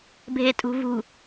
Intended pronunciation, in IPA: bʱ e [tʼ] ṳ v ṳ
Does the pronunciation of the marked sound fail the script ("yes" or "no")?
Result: no